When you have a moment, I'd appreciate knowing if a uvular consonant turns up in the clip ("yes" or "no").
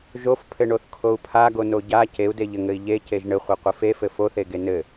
yes